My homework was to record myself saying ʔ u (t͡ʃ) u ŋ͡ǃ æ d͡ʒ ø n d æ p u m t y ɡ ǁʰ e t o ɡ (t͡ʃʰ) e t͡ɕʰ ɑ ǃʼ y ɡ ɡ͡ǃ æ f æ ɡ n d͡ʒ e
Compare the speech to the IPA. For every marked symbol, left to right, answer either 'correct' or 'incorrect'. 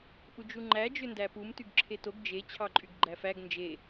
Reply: incorrect: d͡ʒ, incorrect: d͡ʒ

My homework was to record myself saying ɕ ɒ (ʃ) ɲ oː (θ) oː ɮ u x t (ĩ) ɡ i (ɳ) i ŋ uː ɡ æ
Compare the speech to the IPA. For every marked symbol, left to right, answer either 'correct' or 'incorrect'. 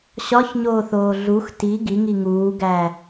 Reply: incorrect: ç, correct, incorrect: i, incorrect: ŋ

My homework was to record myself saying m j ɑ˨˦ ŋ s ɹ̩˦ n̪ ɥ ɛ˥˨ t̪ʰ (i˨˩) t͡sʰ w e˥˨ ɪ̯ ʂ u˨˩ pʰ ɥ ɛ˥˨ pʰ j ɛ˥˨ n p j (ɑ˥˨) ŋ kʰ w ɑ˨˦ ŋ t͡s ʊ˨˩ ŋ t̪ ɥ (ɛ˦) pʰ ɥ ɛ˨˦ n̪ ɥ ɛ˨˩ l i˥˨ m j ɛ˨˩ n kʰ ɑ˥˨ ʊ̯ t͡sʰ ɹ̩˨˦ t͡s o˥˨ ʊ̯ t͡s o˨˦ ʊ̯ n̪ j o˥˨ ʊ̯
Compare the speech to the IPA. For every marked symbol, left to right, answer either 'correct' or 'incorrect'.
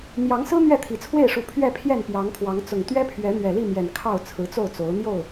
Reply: correct, incorrect: ɑ˨˦, correct

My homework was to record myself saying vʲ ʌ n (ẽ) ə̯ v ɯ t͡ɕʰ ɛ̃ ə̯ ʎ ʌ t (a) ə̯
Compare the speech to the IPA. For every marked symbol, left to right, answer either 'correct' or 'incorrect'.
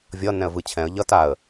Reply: incorrect: ɛ̃, correct

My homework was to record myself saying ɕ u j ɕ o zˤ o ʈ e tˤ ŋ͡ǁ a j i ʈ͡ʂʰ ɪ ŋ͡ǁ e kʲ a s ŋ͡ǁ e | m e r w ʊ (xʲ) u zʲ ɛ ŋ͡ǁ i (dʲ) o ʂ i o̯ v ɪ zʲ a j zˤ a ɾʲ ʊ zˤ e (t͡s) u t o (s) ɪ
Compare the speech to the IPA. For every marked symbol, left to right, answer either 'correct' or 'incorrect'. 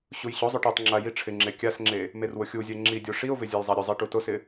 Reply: correct, correct, incorrect: ʈ, correct

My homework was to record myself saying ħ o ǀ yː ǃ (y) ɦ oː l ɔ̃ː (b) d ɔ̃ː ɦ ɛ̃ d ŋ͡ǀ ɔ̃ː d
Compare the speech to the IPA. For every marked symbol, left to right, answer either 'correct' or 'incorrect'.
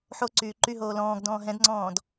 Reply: correct, incorrect: ɡ

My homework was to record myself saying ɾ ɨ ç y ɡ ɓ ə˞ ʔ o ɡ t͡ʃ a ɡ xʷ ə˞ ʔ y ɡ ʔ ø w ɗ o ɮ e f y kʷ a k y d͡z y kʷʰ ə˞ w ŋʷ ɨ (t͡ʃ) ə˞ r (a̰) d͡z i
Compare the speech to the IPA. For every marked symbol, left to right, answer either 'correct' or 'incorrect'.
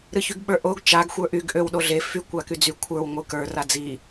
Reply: incorrect: k, incorrect: a

